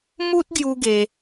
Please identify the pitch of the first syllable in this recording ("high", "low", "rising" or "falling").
high